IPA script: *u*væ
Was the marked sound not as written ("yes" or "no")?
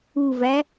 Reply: no